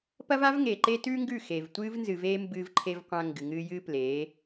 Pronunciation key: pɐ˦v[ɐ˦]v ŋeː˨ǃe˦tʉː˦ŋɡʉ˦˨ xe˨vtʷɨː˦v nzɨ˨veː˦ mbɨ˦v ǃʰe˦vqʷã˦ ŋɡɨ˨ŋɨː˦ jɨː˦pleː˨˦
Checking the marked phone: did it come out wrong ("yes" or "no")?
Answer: yes